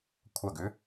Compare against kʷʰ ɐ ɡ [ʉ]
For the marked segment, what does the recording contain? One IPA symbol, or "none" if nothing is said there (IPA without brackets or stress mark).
ʉ